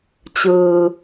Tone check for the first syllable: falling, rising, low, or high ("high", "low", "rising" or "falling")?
low